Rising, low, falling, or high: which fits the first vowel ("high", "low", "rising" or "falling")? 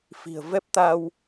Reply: low